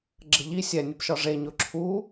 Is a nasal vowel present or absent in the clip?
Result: absent